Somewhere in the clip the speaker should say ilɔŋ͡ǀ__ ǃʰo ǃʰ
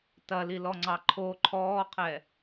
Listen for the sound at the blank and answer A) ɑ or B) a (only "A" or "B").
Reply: A